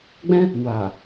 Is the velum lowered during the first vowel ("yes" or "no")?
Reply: yes